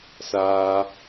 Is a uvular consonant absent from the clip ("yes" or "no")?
yes